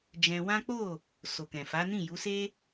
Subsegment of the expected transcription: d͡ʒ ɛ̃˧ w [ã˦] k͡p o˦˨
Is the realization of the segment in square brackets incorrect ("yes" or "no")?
no